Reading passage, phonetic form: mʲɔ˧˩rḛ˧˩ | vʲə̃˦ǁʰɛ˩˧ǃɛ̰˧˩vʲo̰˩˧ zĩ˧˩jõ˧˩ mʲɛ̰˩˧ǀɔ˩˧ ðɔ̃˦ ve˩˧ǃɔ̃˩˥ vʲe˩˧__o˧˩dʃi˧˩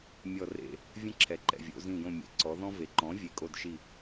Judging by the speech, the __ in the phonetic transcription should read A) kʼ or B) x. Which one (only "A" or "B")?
A